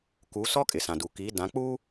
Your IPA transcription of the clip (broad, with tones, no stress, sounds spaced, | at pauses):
k u˨˦ s ɔ˦ kʼ ɪ˨ s ã˨ d u˨ k i˨˦ d ã˨˦ k͡p uː˦